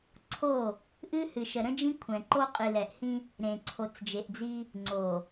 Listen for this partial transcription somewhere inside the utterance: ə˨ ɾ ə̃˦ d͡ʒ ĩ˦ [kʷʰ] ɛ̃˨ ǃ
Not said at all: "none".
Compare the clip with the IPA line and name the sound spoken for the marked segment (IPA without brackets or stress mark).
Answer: kʷʰ